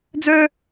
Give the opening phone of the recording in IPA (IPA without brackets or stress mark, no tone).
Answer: d͡z